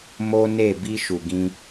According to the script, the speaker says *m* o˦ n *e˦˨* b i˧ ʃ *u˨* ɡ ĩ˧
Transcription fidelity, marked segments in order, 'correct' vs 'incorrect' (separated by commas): correct, correct, correct